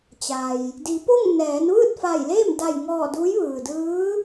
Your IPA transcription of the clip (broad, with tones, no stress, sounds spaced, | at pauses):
t͡ɕ a˩ j | d i˩˧ p o˥˨ ŋ n ɛː˩˧ n ʋ ɯː˥˨ t̚ f a˧˩ j l eː˥˨ m d a˧˩ j ŋ ɔː˧˩ d uː˧˥ j ʋ ɯː˩ d ɯː˧˥